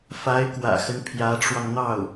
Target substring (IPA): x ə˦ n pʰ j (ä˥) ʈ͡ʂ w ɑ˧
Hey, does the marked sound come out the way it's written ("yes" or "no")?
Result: no